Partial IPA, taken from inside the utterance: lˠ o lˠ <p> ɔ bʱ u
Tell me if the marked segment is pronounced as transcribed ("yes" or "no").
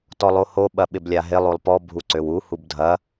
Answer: yes